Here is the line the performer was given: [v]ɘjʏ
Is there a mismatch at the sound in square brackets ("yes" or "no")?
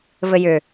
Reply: no